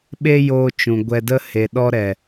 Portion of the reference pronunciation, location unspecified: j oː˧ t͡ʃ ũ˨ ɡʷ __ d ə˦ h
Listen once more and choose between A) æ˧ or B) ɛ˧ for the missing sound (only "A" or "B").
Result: B